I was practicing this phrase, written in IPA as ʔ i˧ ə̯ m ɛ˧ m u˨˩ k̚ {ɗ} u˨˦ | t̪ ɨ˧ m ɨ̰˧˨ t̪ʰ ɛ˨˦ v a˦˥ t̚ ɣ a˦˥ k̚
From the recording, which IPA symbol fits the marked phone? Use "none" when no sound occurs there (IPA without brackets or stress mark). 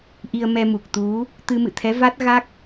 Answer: t̪